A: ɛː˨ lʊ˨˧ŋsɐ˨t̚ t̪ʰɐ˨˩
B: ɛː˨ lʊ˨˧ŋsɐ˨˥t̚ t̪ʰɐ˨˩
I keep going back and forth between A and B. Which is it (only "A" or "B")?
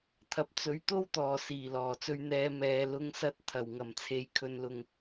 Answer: B